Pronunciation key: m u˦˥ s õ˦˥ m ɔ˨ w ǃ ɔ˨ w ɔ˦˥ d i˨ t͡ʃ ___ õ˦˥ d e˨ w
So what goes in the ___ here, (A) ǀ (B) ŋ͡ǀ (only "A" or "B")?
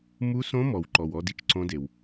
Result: A